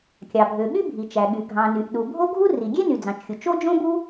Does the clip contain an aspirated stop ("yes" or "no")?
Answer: no